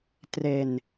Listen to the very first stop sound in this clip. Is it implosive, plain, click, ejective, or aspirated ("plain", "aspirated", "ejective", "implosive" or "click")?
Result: plain